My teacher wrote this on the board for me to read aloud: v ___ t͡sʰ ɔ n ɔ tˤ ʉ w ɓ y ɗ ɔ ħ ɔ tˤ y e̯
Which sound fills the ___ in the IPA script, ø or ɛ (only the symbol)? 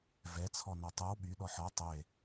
ɛ